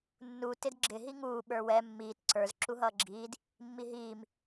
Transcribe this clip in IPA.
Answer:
nːu tɪdɡ͡ǁɪ ɦiŋuː ɓə˞wɛ mːiːt ǀə˞z ǁuɦʌːɡ͡ǁiːd | mːiɦiːm

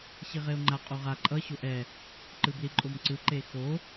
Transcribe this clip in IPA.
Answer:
ɕiʁeo̯ŋ͡ǃa qʼoʁa ǃʼʌ ɕoʔɛ | ǃɯbliǃʼomǀɯ ǃexo

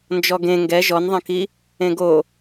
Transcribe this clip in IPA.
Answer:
nd͡ʒɔɡẽ ŋɡɛ ʒɔnðˤɐ̃ki | ẽɡo

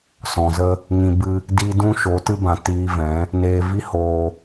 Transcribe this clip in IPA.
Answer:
sɔ̃˨zə˦ | ŋĩ˨bɨ˧ | di˧ dũ˦ʃo˨˦tɨ˦ bã˨tiː˧vɛ̃˨˦ | neː˨ vi˦ hoː˧

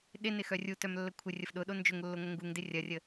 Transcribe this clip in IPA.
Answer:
ɗɪnɪxœ rʲutœmlːə kʷʰɪrʲəf ɗʊɗo nd͡ʒʊŋlːoŋʷə ŋɡuŋdɪ rʲɐrʲə

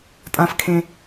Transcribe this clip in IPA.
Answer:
tʼãfkʰẽ

